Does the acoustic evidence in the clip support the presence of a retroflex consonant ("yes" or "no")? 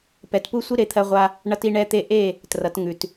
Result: yes